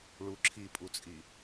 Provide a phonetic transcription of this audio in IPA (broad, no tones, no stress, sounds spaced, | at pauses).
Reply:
ɭ u ǁʰ i pʼ u t͡sʼ i